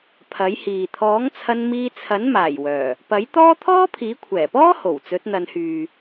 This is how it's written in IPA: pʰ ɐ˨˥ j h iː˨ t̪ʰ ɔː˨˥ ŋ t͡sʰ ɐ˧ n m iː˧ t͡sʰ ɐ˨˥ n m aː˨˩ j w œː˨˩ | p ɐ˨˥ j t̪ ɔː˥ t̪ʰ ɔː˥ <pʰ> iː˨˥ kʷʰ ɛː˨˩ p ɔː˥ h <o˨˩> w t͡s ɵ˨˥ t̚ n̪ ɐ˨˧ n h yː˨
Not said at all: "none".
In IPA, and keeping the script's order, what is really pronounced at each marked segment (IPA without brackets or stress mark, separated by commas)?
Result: pʰ, o˨˩